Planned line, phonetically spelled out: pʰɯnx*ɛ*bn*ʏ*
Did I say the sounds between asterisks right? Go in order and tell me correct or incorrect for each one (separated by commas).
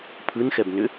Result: correct, correct